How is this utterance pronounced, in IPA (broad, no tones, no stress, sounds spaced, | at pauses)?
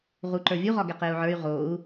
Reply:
ʁ u ǃ ə˞ vʲ u ʁ ɒ ɡ ɛ q e u̯ ʕ ə˞ y̯ ʁ o u̯